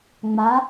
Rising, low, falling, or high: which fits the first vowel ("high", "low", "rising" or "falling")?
rising